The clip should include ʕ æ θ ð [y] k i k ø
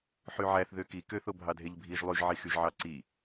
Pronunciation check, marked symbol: incorrect: ø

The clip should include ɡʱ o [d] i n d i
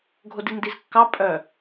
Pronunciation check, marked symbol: correct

